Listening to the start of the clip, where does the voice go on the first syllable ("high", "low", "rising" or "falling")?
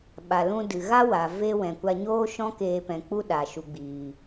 low